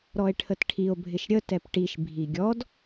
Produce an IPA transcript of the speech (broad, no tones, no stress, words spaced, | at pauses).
ɾɔe̯ʈʰətʈʰio̯ bʱɪʃɾʲə tɛpʈiʃ bʱiɡʲɔd